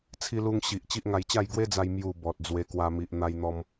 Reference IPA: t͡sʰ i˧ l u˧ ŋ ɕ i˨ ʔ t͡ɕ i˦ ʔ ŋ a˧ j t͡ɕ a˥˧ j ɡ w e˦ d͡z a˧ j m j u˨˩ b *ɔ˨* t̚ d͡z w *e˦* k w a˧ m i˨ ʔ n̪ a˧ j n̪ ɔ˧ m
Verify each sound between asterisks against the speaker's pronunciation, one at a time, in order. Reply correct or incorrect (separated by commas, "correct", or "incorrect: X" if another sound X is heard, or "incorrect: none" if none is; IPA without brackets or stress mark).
correct, incorrect: e˧